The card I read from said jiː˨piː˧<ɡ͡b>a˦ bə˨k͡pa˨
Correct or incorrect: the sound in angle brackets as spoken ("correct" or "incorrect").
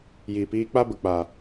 incorrect